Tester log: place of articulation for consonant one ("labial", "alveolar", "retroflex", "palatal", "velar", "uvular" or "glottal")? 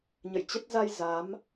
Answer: palatal